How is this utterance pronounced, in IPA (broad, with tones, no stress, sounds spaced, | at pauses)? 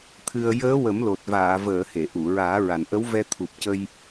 t̪ʰ ɨ˧ ə̯ j əː˧˥ w ə˨˩˦ m l o˨˩ t̚ v aː˨˩˨ v əː˨˩˨ h e˨˩˨ ʔ u˨˩˨ ɹ aː˨˩˦ ɹ a˨˩ n ʔ ə˧˥ w v ɛ˧ t̪ʰ u˨˩ p̚ c ə˧ j